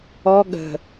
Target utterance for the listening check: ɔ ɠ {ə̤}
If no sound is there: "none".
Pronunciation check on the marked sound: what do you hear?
ə̤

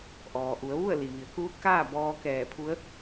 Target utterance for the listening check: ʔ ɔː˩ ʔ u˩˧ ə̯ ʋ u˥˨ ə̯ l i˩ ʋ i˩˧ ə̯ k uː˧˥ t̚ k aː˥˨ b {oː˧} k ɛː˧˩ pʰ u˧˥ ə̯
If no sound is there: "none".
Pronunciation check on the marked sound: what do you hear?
ɔː˧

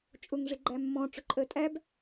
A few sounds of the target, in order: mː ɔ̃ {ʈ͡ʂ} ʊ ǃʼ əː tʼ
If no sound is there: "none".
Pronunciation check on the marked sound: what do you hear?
ʈ͡ʂ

